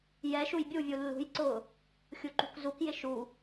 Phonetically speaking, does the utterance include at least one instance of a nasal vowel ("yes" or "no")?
no